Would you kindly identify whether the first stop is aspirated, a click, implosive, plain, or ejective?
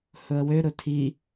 aspirated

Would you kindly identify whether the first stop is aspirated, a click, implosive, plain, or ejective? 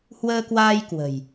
plain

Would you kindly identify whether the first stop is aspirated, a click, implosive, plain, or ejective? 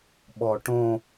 implosive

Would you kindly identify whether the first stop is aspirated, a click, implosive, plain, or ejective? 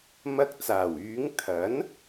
plain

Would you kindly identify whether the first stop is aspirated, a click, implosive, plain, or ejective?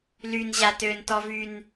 plain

